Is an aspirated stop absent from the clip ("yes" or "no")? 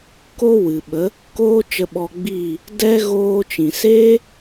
yes